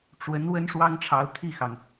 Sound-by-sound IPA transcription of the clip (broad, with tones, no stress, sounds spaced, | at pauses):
ʈ͡ʂ w ə˧˥ n w ə˥ n ʂ w ɑ˥ ŋ ʈ͡ʂʰ ɑ˧˥ ʊ̯ t̪ʰ i˥˩ x ɑ˩ ŋ